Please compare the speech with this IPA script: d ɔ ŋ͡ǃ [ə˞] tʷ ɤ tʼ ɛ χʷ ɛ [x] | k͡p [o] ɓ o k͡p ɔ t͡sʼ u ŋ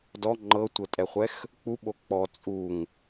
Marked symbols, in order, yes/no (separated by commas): no, yes, no